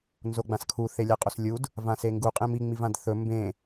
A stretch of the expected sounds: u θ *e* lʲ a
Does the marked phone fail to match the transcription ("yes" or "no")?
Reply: no